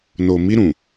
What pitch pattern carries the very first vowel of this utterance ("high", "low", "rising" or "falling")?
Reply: low